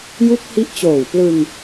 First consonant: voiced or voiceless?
voiced